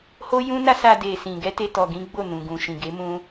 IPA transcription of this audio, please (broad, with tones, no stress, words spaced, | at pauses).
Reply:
ho˦ jũ˦na˦sa˧ de˨sĩ˨ɡɛ˧ te˦tɔ˧ɡĩ˦ɡ͡bo˦˨ nũ˨ ɡũ˨ʃĩ˨ɡe˨˦ mũ˦